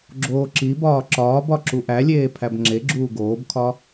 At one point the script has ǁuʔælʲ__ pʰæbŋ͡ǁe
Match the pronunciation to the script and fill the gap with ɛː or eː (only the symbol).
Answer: eː